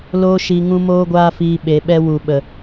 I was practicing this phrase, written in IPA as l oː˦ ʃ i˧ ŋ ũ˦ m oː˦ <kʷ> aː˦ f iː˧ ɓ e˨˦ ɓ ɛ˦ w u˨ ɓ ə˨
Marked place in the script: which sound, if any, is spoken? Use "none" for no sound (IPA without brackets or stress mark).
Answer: ɡʷ